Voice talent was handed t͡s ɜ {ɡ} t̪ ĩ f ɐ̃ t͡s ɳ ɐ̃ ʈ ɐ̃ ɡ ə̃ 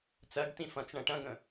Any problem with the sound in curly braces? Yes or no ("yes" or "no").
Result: no